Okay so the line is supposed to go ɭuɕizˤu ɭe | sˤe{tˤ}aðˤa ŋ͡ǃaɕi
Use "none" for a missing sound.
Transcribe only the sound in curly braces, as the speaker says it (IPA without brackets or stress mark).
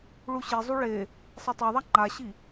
tˤ